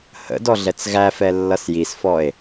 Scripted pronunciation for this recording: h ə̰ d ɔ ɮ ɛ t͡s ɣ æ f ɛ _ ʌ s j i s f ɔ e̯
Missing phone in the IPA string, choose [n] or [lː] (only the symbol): lː